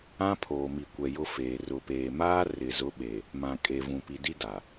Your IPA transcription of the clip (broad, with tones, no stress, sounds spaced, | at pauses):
ã˦ pʰ oː˨ m i˨ kʷ ɛ˨ j ʊ˦ f eː˨ r ʊ˨ p eː˨ m aː˦ r ɪ˨ z ʊ˨˦ ɓ e˨ | m ã˨ kʼ e˨ v ũ˨ p i˨ d i˦ d a˨